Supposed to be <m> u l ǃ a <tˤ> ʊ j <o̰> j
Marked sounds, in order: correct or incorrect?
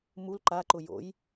correct, incorrect: ǃ, correct

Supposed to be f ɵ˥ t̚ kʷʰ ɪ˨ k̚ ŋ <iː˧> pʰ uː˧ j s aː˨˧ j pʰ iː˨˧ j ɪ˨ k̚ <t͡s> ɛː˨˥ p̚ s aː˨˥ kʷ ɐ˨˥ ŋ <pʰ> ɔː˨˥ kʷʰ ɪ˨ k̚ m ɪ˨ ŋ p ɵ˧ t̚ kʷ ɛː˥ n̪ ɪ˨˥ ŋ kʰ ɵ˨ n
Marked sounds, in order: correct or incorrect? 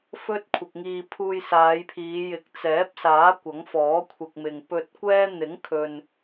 correct, correct, incorrect: f

